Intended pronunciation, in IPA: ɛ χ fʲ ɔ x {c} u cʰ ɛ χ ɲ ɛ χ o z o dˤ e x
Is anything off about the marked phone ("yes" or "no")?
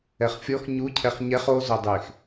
yes